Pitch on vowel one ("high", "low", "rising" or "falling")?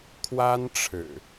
high